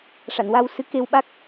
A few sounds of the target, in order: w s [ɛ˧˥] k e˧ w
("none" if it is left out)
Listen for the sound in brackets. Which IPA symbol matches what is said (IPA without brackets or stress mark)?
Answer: ɨ˧˥